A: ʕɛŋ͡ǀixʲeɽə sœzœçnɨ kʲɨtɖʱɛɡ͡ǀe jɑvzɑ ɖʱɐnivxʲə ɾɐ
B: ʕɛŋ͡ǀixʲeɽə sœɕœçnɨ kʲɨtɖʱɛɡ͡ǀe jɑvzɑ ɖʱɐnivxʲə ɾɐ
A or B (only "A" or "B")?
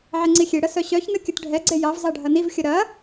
B